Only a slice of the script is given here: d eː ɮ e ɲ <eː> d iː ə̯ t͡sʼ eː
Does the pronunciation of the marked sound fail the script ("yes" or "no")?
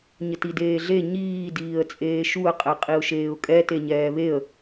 yes